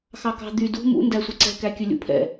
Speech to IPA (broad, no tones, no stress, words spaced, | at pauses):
xɑkɑ̤ d̪y dṳ mṵ ndæsʷiǀɛ̤ kækʲɵlʲṵpʰɛ̰